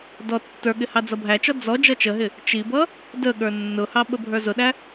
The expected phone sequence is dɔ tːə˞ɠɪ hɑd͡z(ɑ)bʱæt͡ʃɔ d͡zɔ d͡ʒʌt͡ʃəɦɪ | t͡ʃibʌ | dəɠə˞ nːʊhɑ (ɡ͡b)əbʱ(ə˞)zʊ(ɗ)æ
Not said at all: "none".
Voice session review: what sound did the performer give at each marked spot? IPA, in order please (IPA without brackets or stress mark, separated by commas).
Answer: ʌ, ɓ, ə˞, ɗ